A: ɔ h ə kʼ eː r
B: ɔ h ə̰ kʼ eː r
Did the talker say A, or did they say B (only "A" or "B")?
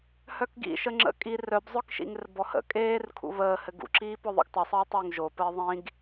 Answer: B